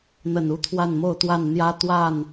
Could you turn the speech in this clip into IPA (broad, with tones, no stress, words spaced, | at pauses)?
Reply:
n̪ə˨˩n u˦t̪ʰwa˥˨nmo˥˨ʊ̯t̪wa˥˨n n̪jä˦t̪wa˥˨n